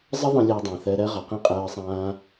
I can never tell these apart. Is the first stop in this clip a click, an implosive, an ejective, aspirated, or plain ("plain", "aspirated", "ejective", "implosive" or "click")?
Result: plain